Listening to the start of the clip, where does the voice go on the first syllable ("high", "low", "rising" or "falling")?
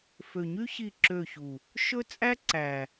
low